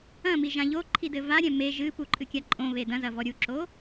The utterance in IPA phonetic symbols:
ɐ̃ m i ʒ ã ʎ o ǃʰ i d ɘ v a ɾʲ ɛ̃ m e ʒ ɨ p u ǃʼ ɨ kʲ a ǃʼ õ β e d ɐ̃ z ɐ v ɔ ɾʲ u ǁ o

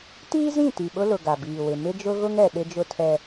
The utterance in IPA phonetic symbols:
t iː˦ z ĩ˦˨ t i˨ ɓ ʊ˦ l ʊ˨ ɡ a˨ b iː˨ w ɪ˨ m ɪ˦ d͡ʒ ʊ˦ ɣ ʊ˦ ŋ ɛ˨ ɗ ɪ˦ d͡ʒ ʊ˦ tʰ ɛ˦

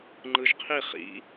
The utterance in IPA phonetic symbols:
ŋ͡ǃ ɯ ʒ qʰ i χ ḭ

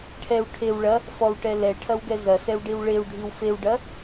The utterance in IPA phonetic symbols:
ʈʰ ɛ w ʈʰ e w ɭ ɐ | f ɔ w ʈ ɛ l ɛ ʈʰ ɐ w ɡ ɛ z ɐ s ɛ w ɖ i w ɭ e w ɖʱ i w f e w ɖ ɐ

